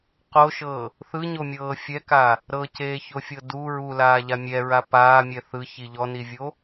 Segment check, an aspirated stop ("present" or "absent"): absent